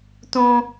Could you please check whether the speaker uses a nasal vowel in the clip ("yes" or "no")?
yes